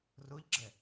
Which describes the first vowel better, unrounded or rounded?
rounded